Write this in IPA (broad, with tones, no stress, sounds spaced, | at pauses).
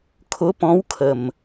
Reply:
kʰ ʊ˨˦ p ɔ̃˨˦ w kʰ ə˨˩ m